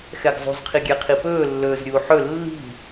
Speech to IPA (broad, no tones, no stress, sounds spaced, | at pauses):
x ɛ ɡ zˤ ṳ z qʰ i ɡʲ ɛ qʰ i p ɵː lː ɵː z ɾʲ uː ħ ɵ lː i̤